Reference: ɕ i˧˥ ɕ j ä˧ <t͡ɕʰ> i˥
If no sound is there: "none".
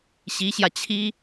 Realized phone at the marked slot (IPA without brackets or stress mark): t͡ɕʰ